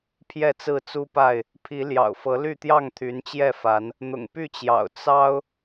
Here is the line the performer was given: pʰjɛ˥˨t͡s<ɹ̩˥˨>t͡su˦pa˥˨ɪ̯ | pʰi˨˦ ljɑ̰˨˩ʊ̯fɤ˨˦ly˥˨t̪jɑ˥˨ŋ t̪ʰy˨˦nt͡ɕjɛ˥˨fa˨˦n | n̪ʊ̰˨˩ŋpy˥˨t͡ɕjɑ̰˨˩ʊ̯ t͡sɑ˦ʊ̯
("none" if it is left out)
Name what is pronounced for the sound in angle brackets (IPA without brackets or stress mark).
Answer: ɹ̩˥˨